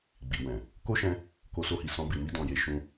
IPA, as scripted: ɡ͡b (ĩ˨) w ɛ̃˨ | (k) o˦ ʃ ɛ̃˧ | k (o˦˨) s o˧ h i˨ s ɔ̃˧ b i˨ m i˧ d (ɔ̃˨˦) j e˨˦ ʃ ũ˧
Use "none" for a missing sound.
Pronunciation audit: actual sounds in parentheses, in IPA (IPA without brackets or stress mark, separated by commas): i˨, k, o˧, ɔ̃˨